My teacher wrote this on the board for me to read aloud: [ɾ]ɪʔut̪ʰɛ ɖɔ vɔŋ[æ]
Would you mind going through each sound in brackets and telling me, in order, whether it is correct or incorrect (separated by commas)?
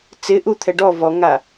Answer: incorrect, incorrect